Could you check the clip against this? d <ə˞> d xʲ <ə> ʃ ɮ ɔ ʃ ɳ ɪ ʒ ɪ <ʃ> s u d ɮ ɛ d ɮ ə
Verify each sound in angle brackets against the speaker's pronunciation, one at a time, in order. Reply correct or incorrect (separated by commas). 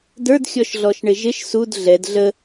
correct, incorrect, correct